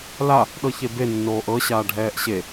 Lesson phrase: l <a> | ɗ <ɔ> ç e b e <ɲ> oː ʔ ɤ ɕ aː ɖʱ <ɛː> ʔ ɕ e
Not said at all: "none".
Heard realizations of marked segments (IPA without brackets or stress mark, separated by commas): a, ɤ, nː, ɛː